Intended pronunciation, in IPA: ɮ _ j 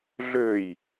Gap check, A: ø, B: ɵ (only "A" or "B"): A